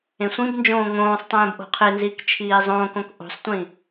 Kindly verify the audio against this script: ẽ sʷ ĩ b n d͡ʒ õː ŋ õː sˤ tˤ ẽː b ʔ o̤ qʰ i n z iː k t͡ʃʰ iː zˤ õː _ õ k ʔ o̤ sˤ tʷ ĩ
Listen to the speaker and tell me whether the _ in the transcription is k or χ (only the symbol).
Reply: k